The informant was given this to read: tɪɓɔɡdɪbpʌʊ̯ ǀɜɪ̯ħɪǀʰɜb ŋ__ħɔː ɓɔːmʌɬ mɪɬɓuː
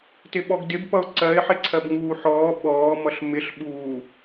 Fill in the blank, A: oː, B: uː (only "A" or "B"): B